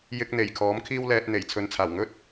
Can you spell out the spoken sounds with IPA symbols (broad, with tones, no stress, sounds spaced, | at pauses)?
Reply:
j ɪ˧ k̚ n̪ e˨˩ j kʰ ɔː˨˥ m kʰ iː˥ w l ɛː˧ t̚ n̪ e˨˩ j t͡sʰ ɵ˨ n t͡sʰ aː˨˩ w ŋ ɵ˥ t̚